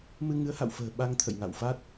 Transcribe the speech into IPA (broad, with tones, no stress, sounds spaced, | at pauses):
m ɨ˧ ŋ ɨ˨˦ ə̯ h a̰˧˨ w f ə̤ː˨˩ ɓ a˧ ŋ t̪ʰ ə̰˧˨ j ŋ a̰˧˨ w f a˦˥ t̚